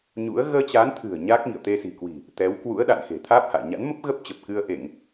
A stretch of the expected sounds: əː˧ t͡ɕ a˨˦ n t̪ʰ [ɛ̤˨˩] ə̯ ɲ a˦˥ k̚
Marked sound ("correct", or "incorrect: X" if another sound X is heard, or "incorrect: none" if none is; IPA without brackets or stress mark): incorrect: ɨ̤˨˩